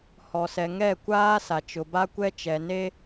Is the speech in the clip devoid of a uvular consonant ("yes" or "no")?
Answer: yes